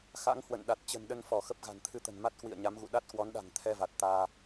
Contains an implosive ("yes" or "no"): yes